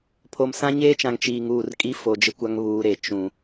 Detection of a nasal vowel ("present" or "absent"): present